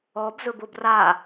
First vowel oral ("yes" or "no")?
yes